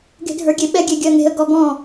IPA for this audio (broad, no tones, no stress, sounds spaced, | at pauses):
ɡ e̤ dʱ ə˞ ɡʲ e ɓ ɛ ɡʲ e ɡʲ ɜ ŋ e̤ ə̯ ɡ ɔ ɡ ɔ̃